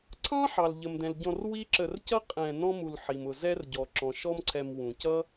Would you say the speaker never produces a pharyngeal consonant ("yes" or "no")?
no